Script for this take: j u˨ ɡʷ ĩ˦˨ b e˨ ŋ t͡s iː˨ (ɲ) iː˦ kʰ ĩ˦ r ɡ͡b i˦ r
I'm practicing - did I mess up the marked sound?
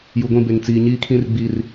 no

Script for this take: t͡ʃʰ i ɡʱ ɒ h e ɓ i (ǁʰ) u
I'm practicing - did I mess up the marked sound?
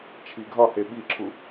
no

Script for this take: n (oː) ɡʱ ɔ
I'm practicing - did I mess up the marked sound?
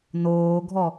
no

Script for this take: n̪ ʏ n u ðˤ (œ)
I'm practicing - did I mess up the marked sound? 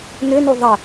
yes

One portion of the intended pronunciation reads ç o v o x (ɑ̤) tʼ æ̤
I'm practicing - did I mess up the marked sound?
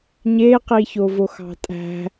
no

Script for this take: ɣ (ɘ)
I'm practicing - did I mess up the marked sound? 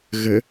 no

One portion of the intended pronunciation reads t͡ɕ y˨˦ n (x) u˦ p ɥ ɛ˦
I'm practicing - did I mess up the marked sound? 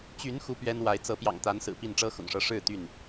no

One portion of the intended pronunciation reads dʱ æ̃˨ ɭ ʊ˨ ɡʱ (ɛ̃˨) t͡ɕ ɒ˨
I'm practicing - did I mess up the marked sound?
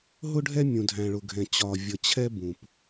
no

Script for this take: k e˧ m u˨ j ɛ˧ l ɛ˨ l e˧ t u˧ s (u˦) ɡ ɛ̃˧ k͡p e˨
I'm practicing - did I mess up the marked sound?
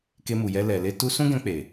yes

